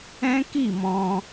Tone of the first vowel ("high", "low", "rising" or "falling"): high